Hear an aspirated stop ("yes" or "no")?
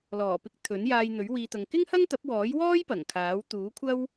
yes